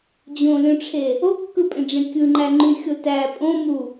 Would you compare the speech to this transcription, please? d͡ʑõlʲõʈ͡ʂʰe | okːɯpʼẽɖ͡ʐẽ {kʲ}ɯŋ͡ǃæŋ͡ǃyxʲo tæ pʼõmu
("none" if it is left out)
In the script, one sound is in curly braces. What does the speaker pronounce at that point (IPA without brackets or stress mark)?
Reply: kʲ